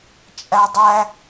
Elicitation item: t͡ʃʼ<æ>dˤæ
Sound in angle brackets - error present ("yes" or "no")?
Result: no